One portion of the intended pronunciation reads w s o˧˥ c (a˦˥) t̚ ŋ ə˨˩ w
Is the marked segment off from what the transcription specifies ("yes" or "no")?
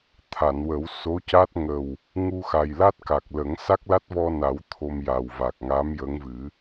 no